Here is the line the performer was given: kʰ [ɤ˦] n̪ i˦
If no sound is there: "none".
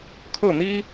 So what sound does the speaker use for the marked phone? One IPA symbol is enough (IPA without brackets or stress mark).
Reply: ɤ˥˨